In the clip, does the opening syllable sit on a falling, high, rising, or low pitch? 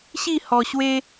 falling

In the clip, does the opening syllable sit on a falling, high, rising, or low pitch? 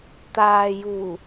low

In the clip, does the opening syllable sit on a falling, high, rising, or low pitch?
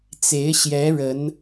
rising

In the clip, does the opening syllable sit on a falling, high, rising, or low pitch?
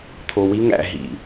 low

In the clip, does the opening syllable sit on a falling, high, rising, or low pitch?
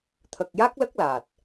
low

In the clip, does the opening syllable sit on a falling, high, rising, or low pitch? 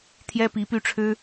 high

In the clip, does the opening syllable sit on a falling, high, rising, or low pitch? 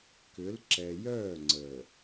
rising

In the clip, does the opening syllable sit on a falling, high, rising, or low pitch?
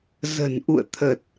low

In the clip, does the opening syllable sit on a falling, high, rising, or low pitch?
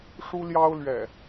high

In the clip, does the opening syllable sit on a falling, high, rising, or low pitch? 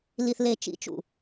low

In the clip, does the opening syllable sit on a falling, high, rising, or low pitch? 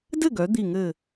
falling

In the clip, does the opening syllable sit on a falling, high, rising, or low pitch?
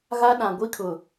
high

